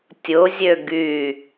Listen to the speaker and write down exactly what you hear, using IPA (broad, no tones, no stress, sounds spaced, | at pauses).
tʲ ʊ zʲ ø ɡ y